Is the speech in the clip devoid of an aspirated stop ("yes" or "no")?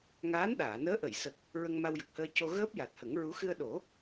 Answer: yes